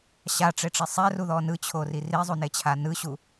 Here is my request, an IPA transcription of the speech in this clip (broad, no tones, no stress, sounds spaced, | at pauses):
ɕ a ʈ͡ʂ e ʈ͡ʂ e sˤ ɛ r u ð ɔ n ɯ t͡ɕʰ o r i r i zˤ u n e t͡ɕʰ a n ɯ ɕ u